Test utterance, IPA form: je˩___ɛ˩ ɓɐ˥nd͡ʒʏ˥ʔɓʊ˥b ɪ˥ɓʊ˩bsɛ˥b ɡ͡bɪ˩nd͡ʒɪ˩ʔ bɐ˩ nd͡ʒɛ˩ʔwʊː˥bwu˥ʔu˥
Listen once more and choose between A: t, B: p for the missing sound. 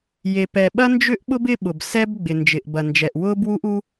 B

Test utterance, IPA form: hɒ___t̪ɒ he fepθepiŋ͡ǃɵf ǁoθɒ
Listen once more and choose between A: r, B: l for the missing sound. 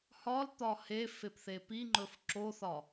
B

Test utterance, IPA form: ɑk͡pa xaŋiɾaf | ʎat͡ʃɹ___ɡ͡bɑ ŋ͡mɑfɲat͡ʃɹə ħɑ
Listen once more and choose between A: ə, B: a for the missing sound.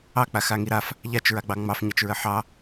B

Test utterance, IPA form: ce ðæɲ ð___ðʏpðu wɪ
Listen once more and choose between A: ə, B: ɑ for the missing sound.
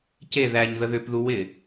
A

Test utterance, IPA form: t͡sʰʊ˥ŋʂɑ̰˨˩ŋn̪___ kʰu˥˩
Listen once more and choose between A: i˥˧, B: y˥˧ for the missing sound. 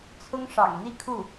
A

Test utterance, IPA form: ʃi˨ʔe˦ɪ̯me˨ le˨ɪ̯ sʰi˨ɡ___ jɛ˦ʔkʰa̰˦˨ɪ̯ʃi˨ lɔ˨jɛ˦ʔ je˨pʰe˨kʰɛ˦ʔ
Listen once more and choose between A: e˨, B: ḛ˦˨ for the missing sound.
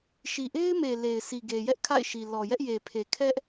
A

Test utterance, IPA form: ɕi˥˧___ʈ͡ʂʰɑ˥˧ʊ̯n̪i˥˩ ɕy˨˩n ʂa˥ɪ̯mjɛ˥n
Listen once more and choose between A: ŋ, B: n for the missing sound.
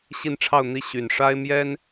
B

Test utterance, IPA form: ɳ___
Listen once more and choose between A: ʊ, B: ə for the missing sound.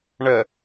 B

